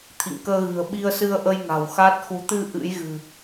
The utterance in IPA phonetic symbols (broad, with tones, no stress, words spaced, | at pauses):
t̪ʰḭ˧˨ŋkəː˧ɣɨ̤˨˩ə̯ ɓi˧ə̯sɨ˧ə̯ʔə˧j ŋa̤˨˩wxa˦˥t̚xu˨˦ t̪ɨ˧ ʔɨ̰˧˥jɣɨ̤˨˩